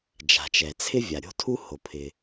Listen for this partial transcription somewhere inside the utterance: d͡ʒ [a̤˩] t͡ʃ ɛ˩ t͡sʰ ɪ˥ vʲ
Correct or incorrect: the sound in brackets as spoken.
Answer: correct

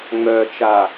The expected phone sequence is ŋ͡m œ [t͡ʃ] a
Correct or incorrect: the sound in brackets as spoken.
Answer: correct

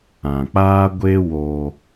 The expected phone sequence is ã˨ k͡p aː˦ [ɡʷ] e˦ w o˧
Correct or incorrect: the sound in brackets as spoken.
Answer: correct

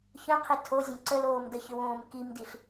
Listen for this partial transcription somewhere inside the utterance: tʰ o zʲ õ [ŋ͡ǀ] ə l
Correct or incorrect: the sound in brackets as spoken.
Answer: incorrect: ǀ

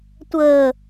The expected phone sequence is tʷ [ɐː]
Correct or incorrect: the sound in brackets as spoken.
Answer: incorrect: əː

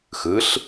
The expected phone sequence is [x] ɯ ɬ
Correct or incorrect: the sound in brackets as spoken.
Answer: correct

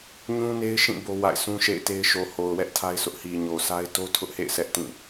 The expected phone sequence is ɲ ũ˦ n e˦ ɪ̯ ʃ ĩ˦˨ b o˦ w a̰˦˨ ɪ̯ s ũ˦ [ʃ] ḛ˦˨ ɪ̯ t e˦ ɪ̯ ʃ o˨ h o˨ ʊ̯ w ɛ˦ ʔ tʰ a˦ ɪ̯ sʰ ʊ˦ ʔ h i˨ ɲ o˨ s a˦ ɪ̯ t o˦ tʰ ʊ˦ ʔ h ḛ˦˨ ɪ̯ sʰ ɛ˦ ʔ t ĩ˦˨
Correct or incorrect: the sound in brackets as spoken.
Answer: correct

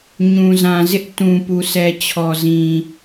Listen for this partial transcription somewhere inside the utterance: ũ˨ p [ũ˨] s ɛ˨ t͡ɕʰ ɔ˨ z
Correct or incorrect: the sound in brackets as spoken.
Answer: incorrect: u˨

